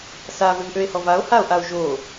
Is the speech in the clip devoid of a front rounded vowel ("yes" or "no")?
no